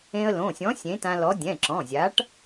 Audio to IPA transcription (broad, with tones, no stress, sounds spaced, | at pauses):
ẽ˧ ə̯ l õ˩˧˩ sʲ ɔ̃˨˥ sʲ ẽ˨˥ t ã˧ l ɔ˨˥ dʲ ɛ̃˩˧˩ ǁ ɔ̃˩˧˩ zʲ a˨˥ ʈ